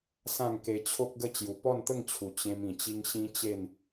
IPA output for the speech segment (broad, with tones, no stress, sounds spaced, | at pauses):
s ã˥˧ ŋ k e˧ t͡ɕʰ o˦ k̚ ɡ ə˥˧ t͡ɕ j u˨˩ p ɔ˥˧ n t̪ ə˥˧ ŋ t͡ɕʰ u˨˩ t͡ɕ ẽ˧ m ĩ˨˩ t͡ɕ i˦ ŋ ɕ ĩ˦ t͡ɕ e˥˧ n